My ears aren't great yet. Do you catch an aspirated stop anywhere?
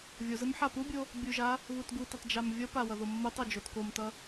no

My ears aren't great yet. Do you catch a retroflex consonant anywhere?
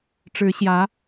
yes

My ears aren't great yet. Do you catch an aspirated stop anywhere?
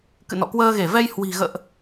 no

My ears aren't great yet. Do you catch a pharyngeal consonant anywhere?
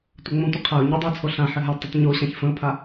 yes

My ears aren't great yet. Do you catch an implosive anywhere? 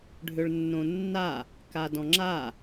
no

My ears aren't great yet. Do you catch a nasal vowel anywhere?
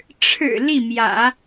no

